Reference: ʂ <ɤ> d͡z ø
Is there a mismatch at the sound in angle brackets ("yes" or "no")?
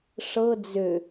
no